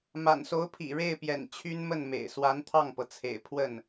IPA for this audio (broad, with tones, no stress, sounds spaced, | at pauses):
m a̰˨˩ n s o˧˥ ʊ̯ pʰ ḭ˨˩ ɻ e˥˩ ɪ̯ p j ɛ̰˨˩ n t͡ɕʰ y˥ n m ə˥˩ n m ḛ˨˩ ɪ̯ s w a˧˥ n t̪ʰ ɑ˥˩ ŋ p ɤ˩ t͡sʰ ḛ˨˩ ɪ̯ pʰ w ə˥˩ n